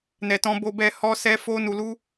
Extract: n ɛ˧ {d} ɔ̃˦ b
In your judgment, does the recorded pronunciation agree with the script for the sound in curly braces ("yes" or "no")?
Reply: no